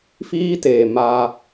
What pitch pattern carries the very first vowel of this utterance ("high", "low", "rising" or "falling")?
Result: high